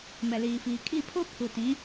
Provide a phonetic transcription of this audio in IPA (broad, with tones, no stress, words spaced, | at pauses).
mɛ˨liː˨fiː˨ kʼi˦˨pʰo˦ pʰu˨tĩ˨˦